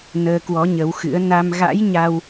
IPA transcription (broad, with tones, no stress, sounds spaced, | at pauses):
n əː˧ k w ɔ˨˦ ɲ ə˨˦ w x ɨ̰˧˥ ə̯ n a˧ m ɣ a̰˧˥ j ɲ a˧ w